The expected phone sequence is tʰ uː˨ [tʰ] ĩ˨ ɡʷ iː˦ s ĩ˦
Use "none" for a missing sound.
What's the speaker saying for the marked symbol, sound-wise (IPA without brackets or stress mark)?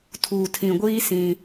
tʰ